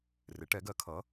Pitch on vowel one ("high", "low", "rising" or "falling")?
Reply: rising